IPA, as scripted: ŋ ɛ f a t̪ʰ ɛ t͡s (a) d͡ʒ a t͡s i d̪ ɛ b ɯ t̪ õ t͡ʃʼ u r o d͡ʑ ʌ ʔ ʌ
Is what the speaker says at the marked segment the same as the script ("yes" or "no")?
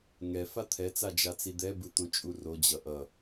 yes